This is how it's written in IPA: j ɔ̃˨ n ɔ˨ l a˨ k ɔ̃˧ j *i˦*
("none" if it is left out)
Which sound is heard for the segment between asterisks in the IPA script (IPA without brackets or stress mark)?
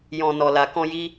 i˦